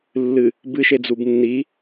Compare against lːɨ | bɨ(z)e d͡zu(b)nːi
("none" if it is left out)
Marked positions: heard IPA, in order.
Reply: ʃ, b

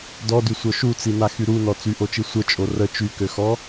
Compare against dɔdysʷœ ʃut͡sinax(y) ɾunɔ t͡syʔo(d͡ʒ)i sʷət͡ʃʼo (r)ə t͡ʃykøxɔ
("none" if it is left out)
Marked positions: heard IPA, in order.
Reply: y, t͡ʃ, r

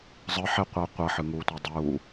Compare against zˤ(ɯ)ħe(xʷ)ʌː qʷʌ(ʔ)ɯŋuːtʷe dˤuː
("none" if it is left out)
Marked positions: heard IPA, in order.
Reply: ɯ, qʷ, ħ

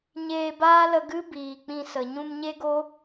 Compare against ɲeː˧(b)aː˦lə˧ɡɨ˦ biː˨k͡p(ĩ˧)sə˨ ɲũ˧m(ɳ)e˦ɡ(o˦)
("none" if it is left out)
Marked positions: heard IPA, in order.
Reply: b, ĩ˧, ɲ, o˦

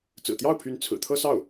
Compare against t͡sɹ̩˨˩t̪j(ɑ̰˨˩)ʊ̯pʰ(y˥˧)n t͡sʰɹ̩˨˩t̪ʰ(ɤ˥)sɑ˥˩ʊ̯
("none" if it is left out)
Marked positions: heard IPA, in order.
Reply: ɑ˥˩, y˧˥, ɤ˥

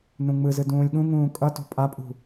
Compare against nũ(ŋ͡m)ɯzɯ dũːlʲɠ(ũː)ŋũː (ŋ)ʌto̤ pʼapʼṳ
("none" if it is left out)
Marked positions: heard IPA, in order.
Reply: ŋ͡m, ũ, kʼ

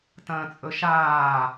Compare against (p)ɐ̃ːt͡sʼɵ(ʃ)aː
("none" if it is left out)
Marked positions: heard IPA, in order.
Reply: t, ʃ

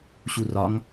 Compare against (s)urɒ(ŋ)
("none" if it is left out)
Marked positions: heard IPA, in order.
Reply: ɕ, ŋ

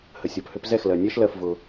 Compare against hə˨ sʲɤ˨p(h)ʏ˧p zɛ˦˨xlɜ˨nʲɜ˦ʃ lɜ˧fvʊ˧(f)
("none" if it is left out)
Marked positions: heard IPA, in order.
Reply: h, none

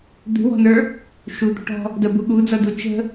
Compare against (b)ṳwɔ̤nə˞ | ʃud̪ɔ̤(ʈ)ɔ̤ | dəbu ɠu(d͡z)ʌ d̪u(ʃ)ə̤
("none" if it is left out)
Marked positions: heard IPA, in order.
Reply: d̪, ʈ, d͡z, t͡ʃ

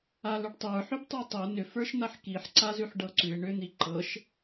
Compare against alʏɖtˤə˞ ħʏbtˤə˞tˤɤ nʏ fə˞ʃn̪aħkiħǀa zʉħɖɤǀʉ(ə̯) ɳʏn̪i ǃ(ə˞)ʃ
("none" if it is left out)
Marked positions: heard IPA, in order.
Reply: ɪ̯, ɤ

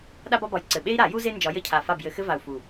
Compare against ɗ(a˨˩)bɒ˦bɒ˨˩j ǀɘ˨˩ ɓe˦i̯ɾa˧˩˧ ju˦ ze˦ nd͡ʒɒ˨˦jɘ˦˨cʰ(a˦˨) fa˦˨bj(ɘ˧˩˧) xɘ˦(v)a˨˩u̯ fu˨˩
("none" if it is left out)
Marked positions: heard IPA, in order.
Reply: a˦, a˨˩, ɘ˧˩˧, v

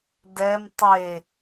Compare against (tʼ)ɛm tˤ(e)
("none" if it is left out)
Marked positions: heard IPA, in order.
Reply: d, e

